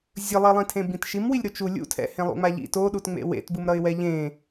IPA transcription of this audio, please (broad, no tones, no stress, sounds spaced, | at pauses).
zʲ ɯ lˠ i lˠ ĩ tʰ ẽ b ĩ t ʃ i m w i lʲ ɾ u t͡ʃ u lʲ ṵ tʰ ɛ̰ h ẽ lˠ ṵ ŋ͡m a ʎ ḭ t o ɗ u t ŋ͡m ḛ w ḛ t b ɯ m ɾ ʌ ɪ̯ w ɛ ʎ ẽ